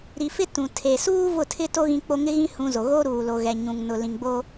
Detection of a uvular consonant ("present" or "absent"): absent